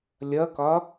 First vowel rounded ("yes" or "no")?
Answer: no